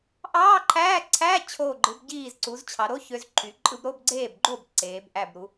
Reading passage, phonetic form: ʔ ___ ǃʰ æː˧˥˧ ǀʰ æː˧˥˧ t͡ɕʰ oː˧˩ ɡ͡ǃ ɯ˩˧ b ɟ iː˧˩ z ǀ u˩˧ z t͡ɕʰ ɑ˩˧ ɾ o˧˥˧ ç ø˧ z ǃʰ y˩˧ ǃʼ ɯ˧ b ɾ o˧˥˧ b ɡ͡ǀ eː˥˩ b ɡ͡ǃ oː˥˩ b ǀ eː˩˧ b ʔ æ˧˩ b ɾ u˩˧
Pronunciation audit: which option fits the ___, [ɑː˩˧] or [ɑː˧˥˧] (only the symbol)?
ɑː˧˥˧